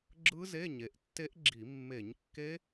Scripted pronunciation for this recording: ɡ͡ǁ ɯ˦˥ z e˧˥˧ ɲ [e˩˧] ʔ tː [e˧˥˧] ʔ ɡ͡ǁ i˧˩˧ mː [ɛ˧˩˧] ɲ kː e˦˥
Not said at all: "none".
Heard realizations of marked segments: e˩˧, e˦˥, e˧˩˧

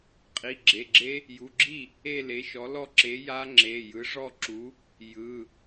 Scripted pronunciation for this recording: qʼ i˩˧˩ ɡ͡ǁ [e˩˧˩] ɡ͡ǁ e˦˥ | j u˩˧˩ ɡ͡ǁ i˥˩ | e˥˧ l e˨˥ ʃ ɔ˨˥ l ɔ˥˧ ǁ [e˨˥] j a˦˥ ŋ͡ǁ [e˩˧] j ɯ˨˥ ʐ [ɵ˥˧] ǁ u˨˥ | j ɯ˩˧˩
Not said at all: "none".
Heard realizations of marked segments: e˩˧˩, e˨˥, e˩˧˩, ɔ˥˧

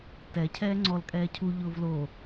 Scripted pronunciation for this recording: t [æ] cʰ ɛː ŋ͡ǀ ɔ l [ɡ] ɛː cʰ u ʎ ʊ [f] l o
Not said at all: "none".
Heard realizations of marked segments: ɛ, kʼ, v

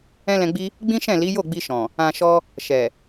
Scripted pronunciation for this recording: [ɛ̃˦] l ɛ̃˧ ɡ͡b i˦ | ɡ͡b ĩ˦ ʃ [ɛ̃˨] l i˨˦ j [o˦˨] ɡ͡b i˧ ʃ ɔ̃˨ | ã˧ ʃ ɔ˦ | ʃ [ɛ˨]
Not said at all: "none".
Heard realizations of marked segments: ɛ̃˦, ɛ̃˦˨, o˦˨, ɛ˨

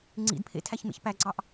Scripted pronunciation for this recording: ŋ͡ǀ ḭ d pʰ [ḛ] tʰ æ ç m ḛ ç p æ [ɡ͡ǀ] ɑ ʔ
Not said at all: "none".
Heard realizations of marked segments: ḛ, ɡ͡ǀ

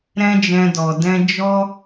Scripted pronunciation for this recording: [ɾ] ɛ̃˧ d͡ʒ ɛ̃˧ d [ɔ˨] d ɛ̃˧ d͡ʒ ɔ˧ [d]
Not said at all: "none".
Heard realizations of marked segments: ɾ, ɔ˨, none

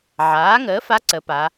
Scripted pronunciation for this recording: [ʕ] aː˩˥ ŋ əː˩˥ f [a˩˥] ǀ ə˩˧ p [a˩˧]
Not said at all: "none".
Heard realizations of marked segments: ʕ, a˧˥, a˩˧

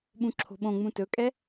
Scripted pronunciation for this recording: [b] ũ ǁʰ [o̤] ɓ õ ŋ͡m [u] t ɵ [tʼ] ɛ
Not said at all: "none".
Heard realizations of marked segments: ɓ, o̤, ũ, kʼ

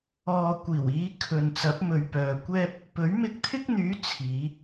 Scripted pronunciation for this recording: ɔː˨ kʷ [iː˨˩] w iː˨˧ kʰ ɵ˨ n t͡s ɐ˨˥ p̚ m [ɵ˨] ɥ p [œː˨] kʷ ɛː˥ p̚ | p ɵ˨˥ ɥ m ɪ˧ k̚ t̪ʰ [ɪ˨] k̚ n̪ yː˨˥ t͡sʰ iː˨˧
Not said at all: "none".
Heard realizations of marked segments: iː˨˩, ɵ˨, œː˨, ɪ˥

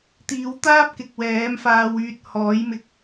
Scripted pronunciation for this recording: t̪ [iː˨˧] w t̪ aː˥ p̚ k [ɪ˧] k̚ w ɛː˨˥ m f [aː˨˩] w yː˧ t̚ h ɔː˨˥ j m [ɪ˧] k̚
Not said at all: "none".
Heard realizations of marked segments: iː˨˧, ɪ˨, aː˧, ɪ˧

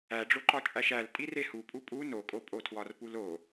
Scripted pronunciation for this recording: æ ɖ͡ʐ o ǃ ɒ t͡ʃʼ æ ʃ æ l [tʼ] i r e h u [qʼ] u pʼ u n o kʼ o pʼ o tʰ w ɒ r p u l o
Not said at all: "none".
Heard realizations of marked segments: tʼ, pʼ

